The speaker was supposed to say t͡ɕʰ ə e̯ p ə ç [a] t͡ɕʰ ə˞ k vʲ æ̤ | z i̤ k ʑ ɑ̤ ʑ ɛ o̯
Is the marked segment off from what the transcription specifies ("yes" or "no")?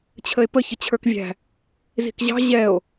yes